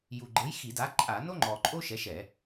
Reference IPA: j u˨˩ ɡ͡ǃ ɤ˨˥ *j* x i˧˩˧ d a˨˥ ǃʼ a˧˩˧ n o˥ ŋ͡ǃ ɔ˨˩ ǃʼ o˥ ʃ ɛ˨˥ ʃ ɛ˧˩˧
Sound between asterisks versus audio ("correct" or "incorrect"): correct